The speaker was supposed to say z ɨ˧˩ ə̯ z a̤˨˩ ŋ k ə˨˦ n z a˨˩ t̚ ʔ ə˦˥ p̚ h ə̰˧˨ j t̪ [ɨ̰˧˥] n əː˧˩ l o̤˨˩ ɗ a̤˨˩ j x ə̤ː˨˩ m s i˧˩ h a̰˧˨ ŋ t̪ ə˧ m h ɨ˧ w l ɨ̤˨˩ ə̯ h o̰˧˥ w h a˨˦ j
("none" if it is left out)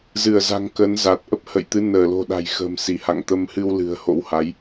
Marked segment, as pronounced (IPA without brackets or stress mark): ɨ˨˦